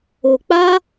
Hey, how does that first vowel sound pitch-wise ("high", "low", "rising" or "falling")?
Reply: low